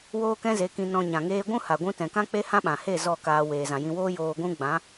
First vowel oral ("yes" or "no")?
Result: yes